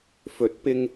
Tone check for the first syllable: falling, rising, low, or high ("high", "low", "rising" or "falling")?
rising